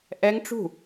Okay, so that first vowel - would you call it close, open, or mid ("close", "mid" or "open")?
mid